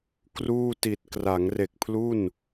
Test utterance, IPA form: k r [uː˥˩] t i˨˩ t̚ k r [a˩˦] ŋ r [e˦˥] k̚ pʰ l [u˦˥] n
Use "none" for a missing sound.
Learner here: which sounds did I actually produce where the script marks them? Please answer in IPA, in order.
uː˥˩, a˩˦, e˨˩, u˥˩

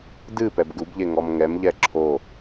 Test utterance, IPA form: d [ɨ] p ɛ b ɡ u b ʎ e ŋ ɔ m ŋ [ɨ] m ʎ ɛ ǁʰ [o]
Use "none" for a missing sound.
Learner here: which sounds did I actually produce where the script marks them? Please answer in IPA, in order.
ɨ, ɛ, o

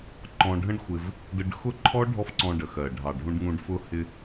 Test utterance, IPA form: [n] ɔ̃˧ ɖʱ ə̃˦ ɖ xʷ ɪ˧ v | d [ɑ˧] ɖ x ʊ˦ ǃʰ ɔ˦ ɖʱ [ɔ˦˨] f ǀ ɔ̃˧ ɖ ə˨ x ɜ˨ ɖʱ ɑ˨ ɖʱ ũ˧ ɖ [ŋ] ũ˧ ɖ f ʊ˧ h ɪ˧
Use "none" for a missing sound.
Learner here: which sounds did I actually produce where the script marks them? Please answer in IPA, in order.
ǃ, ə˧, ɔ˦, ŋ

